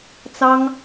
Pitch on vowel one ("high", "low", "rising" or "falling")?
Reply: high